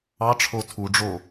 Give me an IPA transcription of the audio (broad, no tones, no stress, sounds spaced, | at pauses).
ɑ ʈ͡ʂʰ o tʰ u ɖ͡ʐ o